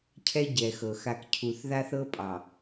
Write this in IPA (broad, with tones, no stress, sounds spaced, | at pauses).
cʰ ɛ˦ ɟ ɛ˨ x ɤ˨ x a˨ k cʰ u˨ θ ð a˦ θ ɤ˦ pʼ ɑ˨